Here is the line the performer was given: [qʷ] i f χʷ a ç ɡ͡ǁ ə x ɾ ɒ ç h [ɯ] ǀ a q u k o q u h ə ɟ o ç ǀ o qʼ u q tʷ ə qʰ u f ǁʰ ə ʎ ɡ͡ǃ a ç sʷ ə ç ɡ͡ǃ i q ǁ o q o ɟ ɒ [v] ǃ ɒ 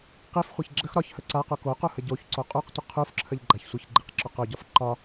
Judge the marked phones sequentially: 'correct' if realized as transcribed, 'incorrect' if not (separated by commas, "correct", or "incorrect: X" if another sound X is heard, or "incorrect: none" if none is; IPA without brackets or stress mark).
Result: incorrect: q, incorrect: ə, incorrect: f